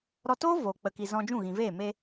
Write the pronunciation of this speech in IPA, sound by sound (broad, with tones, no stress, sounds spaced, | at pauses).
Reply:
ɾ ɔ˧ t oː˦ v oː˨ k͡p ə˨ k i˨ z ɔ̃˧ d͡ʒ ũ˦˨ ɣ ĩ˨ v eː˦˨ m e˧